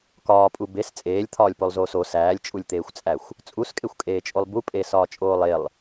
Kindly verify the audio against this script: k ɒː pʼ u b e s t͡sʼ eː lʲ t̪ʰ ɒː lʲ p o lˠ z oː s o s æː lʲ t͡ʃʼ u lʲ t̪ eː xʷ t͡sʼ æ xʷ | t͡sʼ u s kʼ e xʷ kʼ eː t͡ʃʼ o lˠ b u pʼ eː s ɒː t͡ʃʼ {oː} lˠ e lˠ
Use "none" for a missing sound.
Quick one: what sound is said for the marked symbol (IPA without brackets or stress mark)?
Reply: oː